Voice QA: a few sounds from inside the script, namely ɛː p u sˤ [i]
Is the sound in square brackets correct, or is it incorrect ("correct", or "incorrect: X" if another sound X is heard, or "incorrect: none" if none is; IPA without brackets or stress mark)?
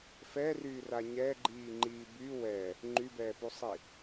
correct